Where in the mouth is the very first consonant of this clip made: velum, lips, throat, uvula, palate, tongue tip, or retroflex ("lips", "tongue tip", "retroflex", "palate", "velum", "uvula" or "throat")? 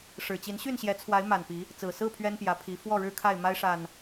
retroflex